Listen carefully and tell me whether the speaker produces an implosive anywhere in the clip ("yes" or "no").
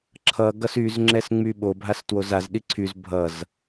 yes